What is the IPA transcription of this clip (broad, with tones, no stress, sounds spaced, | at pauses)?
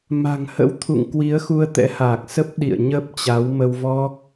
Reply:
m a̤˨˩ ŋ h ə̰˧˥ w t̪ʰ ṵ˧˨ ŋ k w i˨˦ ə̯ x u˧ ə̯ t̪ ɛ̰˧˥ h aː˨˩ k̚ s ə˦˥ p̚ ɗ ḭ˧˨ ə̯ ɲ ə˦˥ p̚ t͡ɕ a˨˦ w m ə˧ w v ɔ˦˥ k̚